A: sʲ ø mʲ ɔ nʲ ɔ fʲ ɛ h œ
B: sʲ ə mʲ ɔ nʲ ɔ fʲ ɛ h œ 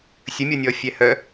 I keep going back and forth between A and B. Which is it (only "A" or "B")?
B